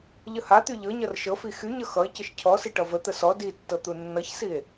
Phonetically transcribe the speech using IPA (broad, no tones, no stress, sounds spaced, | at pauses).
ʎ ə h a t̪ y ʎ ɤ ɲ ʌ r ʃ ɤ f i x y ɲ ʌ x ʌ e̯ c ə ʃ cʰ ɔ s i ʈ ʌ v ə t̪ ə s ɔ d i tː ɤ t̪ u nː ʌ ç s i e̯